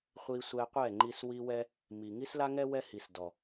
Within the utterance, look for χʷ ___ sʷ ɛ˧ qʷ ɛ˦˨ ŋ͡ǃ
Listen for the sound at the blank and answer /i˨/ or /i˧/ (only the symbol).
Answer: i˧